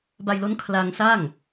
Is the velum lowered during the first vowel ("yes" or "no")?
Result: no